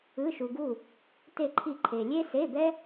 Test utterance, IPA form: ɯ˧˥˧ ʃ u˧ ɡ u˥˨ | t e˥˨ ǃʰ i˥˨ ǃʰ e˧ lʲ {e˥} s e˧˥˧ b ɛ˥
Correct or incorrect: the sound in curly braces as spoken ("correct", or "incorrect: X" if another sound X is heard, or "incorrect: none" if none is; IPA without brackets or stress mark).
correct